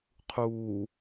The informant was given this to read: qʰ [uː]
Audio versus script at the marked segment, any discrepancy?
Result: no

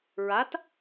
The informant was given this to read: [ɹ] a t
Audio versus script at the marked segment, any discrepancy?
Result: no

